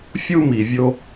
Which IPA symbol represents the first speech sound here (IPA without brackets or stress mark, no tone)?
fʲ